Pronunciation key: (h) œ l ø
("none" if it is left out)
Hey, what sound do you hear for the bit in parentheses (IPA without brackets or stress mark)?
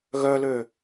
ɣ